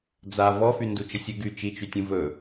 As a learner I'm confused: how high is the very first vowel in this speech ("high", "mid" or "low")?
low